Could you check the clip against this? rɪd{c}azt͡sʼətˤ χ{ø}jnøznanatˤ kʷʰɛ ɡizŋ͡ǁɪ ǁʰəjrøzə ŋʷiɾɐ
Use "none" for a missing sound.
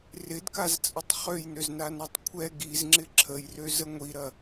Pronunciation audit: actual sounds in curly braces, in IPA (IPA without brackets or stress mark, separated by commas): k, ø